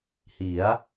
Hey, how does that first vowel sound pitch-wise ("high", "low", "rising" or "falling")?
rising